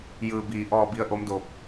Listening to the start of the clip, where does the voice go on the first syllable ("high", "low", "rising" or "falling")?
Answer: low